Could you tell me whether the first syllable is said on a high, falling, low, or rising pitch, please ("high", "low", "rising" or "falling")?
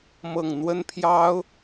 falling